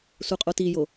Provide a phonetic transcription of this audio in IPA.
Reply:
s u qʼ o t i j o

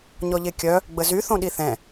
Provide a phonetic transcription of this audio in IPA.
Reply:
ɲ ɔ ʎ e kʲ œ | ɡ͡b ə z y θ õ ɗ i θ ɛ̃

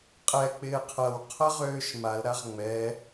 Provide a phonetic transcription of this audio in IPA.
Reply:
qʼ ɛ k͡p ɪː qʰ ɐ w qʰ ɐ ʁ øː ʃ m a l ɾ a ʁ ŋ͡m ɛ

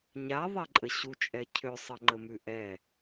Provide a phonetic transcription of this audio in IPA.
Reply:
ɲ a ðˤ ɛ ǃʼ ə ɕ u t͡ʃʼ ɛ cʰ ø sˤ ə ŋ͡ǃ ə m ʉ ʔ ɛ

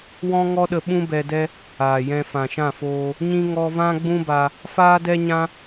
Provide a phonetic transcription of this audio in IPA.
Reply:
w ɔ̃˦ ŋ ɔ˦ ɗ ə˧ ɓ ũ˦ b ɛ˧ d ɛ˦ | aː˨ j ɛ̃˧ f ã˨ ʃ ã˦˨ f oː˧ | ɲ ĩ˦ ŋ ɔ˧ v ã˦ ɡ͡b ũ˦ b a˧ | f aː˦ d ɛ˦ ɲ ã˦

